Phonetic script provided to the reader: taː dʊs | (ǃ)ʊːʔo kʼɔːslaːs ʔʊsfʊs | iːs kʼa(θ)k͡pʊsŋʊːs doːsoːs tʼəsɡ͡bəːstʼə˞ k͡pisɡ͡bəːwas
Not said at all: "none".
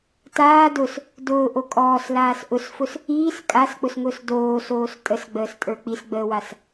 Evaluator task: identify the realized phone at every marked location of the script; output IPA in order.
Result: d, s

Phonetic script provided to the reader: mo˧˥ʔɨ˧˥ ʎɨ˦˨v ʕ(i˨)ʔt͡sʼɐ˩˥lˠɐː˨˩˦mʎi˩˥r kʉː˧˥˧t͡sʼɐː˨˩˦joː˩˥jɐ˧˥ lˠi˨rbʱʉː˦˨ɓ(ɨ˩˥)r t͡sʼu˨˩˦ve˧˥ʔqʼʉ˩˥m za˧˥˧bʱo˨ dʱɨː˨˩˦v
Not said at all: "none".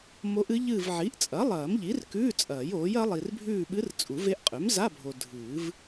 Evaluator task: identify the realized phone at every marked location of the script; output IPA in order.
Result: i˩˥, ɨ˧˥

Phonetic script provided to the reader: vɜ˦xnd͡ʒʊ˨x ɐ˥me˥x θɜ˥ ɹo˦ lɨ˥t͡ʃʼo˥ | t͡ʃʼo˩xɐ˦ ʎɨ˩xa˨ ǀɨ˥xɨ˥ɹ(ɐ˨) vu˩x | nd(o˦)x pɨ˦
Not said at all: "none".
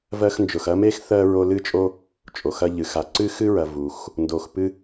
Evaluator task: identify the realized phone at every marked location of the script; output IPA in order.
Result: ɐ˨, o˨

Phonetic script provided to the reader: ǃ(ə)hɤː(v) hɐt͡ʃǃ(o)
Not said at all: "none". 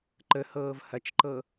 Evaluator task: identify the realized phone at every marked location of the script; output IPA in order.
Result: ə, v, ɤ

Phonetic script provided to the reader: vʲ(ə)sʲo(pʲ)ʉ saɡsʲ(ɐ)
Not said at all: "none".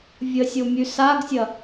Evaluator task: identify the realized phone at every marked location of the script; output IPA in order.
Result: ə, mʲ, ɐ

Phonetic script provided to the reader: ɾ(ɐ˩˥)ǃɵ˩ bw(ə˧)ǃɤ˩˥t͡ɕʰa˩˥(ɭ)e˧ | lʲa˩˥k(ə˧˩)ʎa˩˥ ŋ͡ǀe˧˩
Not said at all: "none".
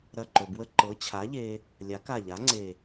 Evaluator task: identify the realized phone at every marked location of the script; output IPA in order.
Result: ɐ˧˩, ə˧, ʎ, a˧˩

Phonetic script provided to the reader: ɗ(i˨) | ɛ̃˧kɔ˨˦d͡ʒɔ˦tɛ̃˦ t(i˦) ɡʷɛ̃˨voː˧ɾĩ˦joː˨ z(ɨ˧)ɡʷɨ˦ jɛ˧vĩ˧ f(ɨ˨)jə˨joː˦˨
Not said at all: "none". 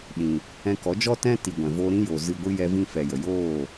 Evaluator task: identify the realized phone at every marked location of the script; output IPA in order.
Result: ĩ˨, i˨, ɨ˧, ɛ˨

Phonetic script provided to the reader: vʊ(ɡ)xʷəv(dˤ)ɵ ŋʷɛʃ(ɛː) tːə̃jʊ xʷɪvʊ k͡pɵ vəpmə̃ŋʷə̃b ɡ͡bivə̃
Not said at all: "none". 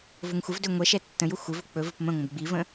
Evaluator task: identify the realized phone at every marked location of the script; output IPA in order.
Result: ŋ, d, ɛ

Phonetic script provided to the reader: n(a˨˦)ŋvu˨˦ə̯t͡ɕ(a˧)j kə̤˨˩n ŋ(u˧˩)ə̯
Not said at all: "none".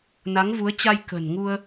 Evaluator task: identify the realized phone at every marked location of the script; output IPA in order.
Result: a˨˦, a˧, u˧

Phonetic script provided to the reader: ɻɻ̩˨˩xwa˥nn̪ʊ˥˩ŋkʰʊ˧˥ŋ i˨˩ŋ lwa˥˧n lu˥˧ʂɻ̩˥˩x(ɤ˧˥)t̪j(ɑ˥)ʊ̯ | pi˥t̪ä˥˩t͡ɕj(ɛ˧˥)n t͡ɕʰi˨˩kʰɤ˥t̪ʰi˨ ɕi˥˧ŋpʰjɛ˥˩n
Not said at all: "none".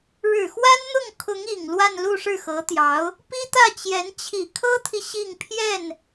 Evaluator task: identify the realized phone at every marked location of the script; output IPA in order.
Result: ɤ˧˥, ɑ˧˥, ɛ˧˥

